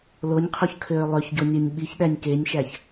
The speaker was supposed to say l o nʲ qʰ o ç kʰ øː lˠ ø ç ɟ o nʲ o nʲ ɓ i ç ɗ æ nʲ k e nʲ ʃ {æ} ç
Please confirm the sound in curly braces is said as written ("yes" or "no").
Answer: yes